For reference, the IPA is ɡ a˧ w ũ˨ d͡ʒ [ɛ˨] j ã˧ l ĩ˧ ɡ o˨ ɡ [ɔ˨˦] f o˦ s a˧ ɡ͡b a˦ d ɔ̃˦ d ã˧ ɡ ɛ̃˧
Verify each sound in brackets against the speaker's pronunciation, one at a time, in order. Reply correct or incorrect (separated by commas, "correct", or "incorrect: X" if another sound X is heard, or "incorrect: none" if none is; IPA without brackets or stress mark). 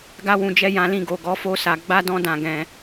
incorrect: ɛ˧, correct